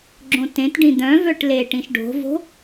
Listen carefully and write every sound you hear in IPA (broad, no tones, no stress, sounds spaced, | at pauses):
ɡ͡ǁ õ t ẽ t ɖ ĩ d̪ œ̃ v œ ʈ l e ʈ ĩ ʃ ɖ o̤ v o̤